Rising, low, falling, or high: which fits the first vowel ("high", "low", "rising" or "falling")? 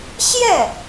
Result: falling